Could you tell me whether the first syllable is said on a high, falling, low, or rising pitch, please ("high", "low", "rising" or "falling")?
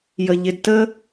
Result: low